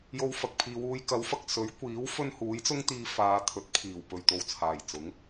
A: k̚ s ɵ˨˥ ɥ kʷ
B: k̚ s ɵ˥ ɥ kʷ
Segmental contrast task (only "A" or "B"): A